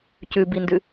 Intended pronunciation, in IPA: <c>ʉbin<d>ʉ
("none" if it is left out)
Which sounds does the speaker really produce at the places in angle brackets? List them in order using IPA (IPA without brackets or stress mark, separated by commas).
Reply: c, d